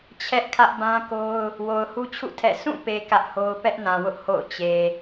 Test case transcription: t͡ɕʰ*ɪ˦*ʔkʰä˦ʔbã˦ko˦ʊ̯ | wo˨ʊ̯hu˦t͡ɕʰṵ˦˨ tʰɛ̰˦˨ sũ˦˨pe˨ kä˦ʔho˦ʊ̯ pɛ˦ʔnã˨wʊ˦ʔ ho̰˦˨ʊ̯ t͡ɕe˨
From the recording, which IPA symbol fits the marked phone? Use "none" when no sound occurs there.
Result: ɛ˦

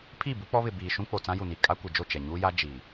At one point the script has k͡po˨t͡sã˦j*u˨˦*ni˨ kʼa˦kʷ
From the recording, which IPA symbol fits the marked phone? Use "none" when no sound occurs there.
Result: u˨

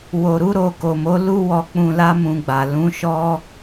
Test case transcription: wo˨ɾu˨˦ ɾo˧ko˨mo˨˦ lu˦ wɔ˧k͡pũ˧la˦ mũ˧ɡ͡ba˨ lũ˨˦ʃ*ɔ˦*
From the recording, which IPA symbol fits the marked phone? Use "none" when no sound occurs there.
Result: ɔ˦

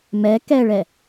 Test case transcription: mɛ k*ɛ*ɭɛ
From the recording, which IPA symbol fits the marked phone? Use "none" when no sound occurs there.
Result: ɛ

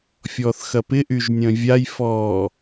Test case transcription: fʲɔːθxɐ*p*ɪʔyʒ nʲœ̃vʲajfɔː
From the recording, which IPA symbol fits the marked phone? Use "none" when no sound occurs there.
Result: p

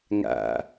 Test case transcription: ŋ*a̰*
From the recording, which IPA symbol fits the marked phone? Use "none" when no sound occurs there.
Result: a̰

